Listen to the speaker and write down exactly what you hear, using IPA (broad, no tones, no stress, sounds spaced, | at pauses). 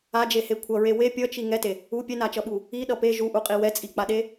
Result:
a d͡ʒ e h e kʷʰ ʌ ɹ e w e pʲ ʌ t͡ʃ i ŋ ɛ t e | u pʲ ɛ n a t͡ʃ ʌ ɓ u | i ɗ ʌ p e ʒ u ʔ u qʼ i w ɛ t͡sʼ i k͡p a ɗ e